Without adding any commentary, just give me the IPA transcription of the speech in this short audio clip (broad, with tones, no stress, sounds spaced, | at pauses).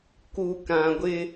k u˨ k ã˨ ɡʷ ɪ˦